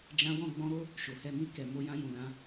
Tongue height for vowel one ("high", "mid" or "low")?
low